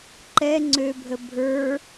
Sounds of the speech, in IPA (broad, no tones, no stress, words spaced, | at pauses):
ǃɛ ŋ͡ǀøbʱə bʱə˞